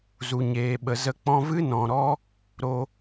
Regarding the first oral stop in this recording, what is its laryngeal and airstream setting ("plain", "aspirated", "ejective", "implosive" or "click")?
implosive